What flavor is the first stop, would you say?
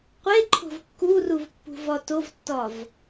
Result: plain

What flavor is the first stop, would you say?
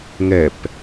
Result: plain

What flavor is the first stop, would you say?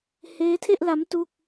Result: aspirated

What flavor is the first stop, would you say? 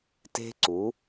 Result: plain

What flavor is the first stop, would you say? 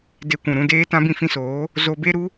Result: plain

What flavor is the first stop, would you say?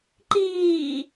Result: click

